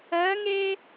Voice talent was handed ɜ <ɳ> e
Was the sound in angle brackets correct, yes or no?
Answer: no